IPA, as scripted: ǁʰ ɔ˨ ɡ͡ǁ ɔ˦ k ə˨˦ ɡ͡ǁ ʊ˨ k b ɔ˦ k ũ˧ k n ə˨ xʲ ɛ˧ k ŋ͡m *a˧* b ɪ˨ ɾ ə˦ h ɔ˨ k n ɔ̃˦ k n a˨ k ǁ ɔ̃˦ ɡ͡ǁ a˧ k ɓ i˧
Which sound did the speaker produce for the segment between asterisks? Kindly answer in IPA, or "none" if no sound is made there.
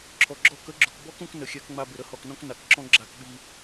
a˧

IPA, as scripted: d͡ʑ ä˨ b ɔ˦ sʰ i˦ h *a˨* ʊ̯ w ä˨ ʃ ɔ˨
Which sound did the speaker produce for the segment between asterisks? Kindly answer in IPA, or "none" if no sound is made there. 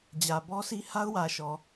a˦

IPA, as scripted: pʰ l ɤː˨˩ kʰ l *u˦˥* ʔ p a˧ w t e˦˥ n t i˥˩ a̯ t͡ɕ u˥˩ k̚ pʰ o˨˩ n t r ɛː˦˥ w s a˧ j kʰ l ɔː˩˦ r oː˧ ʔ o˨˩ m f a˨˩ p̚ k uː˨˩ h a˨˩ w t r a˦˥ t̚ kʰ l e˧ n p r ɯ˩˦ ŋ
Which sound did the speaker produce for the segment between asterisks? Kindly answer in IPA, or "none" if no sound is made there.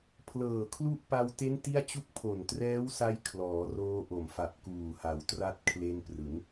u˦˥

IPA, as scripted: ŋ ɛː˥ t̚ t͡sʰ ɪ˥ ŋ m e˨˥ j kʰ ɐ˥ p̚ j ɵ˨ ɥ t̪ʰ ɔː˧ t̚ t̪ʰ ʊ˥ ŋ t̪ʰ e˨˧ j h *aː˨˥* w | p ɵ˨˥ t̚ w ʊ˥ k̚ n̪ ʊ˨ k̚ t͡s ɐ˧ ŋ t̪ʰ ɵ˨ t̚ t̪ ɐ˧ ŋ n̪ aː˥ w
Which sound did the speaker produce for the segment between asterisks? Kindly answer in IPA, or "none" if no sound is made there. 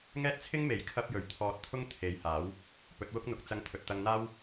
aː˨˥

